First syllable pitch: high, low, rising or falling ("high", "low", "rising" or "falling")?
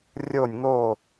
falling